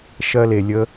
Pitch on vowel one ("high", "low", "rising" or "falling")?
high